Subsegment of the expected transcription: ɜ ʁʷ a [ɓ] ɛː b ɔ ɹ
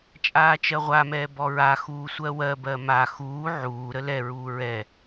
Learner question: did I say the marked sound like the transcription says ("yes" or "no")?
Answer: no